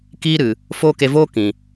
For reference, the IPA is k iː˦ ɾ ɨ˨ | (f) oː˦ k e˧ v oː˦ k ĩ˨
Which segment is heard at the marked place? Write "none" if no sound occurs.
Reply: f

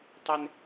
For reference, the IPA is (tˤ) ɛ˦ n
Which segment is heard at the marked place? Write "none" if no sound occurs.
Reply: tˤ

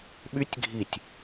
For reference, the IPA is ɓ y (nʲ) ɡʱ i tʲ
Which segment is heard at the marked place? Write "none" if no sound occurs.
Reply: tʲ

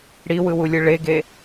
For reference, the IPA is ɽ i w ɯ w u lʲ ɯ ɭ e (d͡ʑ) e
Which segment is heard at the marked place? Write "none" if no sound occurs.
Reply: ɡ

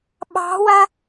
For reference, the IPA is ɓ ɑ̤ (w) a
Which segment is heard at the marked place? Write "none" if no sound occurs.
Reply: w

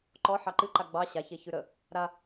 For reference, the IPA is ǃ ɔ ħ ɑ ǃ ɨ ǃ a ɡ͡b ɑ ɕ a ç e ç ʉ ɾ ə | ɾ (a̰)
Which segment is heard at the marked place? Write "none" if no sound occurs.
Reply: a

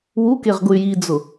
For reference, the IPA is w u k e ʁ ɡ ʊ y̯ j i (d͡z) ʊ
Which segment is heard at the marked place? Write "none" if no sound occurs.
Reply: d͡z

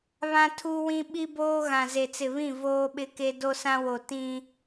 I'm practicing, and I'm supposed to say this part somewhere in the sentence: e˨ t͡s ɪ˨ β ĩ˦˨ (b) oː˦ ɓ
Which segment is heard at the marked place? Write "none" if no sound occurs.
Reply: v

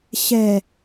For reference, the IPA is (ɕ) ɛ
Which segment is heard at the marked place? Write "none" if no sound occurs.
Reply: ɕ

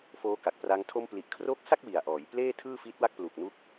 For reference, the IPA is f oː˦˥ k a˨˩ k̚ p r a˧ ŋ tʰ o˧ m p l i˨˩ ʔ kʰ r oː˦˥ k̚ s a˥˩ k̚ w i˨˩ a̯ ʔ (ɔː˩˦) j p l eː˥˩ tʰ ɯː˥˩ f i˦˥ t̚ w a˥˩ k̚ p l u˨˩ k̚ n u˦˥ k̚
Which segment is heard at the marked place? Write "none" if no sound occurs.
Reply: ɔː˩˦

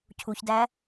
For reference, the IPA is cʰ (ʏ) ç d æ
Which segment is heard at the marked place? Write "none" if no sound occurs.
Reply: u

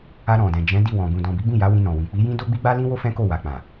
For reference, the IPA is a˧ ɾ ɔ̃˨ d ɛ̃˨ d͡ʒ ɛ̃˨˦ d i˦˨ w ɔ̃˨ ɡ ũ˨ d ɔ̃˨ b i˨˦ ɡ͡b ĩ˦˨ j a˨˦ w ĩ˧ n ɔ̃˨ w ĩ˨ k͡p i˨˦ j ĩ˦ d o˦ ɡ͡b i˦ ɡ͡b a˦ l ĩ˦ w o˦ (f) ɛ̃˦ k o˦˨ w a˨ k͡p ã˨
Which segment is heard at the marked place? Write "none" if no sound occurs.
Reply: f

